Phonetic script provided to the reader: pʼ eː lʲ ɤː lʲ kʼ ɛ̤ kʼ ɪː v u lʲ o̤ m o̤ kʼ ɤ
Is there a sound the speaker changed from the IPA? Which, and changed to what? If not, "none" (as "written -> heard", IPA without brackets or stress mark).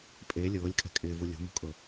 none